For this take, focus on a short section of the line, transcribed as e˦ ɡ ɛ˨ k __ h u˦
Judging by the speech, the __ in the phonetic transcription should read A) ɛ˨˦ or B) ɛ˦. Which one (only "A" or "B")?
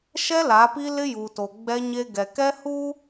B